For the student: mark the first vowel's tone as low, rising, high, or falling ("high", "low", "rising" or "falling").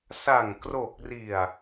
low